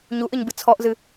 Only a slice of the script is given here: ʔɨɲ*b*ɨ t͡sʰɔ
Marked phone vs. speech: correct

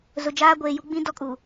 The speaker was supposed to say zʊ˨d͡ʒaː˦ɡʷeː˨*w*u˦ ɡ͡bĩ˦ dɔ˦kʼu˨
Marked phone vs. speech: incorrect: j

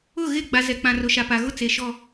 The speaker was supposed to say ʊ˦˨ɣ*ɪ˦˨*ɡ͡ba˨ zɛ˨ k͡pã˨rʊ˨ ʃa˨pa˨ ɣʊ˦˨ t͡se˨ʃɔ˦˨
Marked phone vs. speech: correct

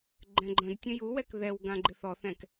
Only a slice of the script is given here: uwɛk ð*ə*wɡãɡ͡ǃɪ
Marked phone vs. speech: incorrect: ɛ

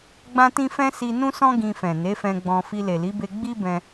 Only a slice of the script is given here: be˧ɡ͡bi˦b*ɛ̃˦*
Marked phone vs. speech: incorrect: ɛ̃˧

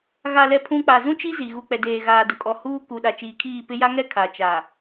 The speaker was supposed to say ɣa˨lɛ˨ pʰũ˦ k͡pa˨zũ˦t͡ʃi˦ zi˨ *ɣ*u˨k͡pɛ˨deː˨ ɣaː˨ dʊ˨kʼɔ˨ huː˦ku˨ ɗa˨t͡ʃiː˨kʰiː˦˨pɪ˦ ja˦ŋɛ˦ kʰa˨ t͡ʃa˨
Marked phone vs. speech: correct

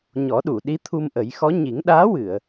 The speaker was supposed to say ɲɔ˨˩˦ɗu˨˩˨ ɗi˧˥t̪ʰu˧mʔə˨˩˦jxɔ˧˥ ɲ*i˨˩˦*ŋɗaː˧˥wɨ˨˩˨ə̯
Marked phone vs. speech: correct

